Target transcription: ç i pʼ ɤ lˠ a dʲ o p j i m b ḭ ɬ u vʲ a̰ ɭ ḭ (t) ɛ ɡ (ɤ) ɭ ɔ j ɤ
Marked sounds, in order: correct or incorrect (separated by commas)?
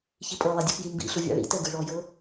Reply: correct, incorrect